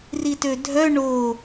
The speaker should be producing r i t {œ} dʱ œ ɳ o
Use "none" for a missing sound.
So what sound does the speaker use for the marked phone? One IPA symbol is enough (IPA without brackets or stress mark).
ø